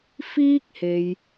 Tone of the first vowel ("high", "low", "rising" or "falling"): high